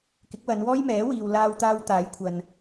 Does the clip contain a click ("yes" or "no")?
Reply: no